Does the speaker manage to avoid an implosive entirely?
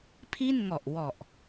yes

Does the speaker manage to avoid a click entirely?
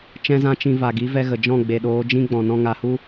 yes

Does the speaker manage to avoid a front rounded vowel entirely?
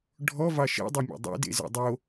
yes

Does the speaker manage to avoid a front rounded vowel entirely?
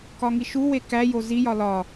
yes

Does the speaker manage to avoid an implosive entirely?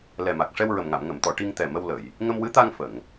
yes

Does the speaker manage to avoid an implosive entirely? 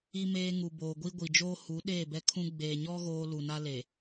no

